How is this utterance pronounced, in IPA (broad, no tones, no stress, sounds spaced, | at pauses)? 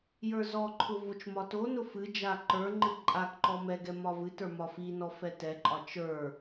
j ə˞ z ɔ ǃʰ ʊ v o t͡ʃ m ɒ t o n ʊ f ɨ d͡ʒ a ǃ ə˞ ŋ͡ǃ ɨ ǃʼ a k ǃ ɔ m ɛ ɡ ɛ m ɒ v ɨ t ə˞ m ɒ f i n ɔ f ɛ t ɛ ǃʼ ɒ t͡ʃ ə˞